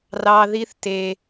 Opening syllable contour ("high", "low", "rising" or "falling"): low